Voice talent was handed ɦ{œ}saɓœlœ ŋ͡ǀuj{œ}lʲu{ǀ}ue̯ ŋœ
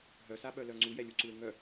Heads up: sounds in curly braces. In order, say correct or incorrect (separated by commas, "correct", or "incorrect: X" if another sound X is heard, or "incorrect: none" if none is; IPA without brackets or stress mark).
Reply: correct, incorrect: ɛ, correct